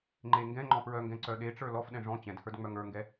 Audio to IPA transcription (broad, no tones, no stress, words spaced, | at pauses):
ŋ͡ǃe ŋɡɛ̃ ŋ͡ǃɔ̃pɹœŋɡɛ̃ ǀœɗeʈ͡ʂə˞ lɔfɗɛ̃ ʐɔ̃ t͡ɕɛ̃dhə˞d ŋ͡mœŋə˞ŋɡɛ